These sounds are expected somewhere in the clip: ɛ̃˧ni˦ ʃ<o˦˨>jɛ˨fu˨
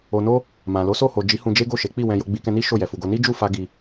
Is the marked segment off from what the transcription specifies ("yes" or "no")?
no